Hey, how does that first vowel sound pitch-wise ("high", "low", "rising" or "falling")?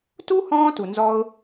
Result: high